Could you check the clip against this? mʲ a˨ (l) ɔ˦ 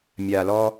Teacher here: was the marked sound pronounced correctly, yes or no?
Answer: yes